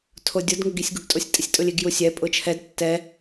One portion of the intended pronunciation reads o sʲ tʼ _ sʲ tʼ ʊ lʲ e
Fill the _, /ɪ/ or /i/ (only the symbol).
ɪ